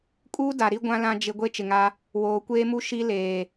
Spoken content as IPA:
kʼ uː˦ d a˨ ɾ i˦ ɡʷ ã˦ l ã˦ d͡ʒ ɪ˦ ɡʷ e˦ t͡ʃ ɪ˨ ŋ a˦ | w oː˨ kʷ eː˦ m u˦ ʃ i˦ l eː˨

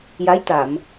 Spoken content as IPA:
j a˧˥ j t̪ a˨˩˨ m

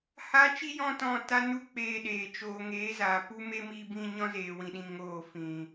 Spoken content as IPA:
h a˦ t͡ʃ i˦ j ɔ̃˦ t ɔ̃˧ t a˦ n u˦ k͡p eː˧ ɗ eː˨ t͡ʃ oː˨ ŋ eː˨˦ z aː˨ p u˦ m e˦ m i˧ b ĩ˧ ɲ ɔ̃˦ z eː˨ w ĩ˧ ɗ ĩ˧ ŋ oː˦˨ f ĩ˨

